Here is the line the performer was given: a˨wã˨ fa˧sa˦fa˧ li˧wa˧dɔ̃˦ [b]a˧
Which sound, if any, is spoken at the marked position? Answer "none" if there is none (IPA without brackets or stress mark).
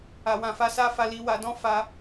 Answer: f